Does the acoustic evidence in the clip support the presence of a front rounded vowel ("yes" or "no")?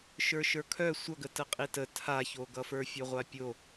yes